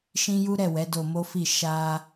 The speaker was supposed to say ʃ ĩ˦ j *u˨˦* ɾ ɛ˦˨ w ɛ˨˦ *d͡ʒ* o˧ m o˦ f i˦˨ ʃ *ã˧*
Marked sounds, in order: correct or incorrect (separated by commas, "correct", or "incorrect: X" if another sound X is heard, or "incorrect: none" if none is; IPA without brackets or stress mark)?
incorrect: u˦, incorrect: d, incorrect: a˧